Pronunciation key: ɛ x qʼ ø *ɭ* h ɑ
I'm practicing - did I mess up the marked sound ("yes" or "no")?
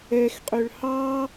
no